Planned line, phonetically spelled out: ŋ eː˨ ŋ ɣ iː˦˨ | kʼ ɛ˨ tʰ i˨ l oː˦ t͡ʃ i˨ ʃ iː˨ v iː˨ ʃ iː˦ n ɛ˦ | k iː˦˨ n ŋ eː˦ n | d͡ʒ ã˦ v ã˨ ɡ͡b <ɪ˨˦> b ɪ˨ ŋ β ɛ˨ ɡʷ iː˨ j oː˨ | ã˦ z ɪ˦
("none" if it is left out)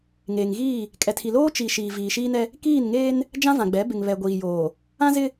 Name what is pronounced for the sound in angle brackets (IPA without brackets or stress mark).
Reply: ɛ˨˦